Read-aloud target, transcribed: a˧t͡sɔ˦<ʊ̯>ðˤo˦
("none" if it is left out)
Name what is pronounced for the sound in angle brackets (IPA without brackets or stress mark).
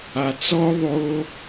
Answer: ʊ̯